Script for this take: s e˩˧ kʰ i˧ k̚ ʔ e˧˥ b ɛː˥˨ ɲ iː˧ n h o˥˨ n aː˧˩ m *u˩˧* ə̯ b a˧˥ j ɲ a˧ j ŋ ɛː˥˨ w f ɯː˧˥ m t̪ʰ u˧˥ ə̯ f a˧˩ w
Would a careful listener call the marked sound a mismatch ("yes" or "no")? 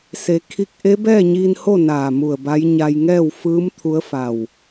yes